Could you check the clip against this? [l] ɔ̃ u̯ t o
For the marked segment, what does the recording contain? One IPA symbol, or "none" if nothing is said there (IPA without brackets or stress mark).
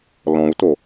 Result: l